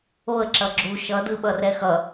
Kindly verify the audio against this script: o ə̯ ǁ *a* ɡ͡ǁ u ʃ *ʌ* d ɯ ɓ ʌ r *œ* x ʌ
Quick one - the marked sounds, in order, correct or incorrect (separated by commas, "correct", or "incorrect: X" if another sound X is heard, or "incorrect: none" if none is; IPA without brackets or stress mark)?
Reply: incorrect: ʌ, correct, incorrect: ɛ